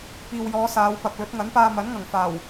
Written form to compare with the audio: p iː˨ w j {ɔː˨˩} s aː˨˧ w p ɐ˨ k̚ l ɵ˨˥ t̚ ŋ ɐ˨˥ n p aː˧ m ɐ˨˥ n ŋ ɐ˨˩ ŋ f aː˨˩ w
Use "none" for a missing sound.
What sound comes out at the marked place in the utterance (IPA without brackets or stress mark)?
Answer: ɔː˨˧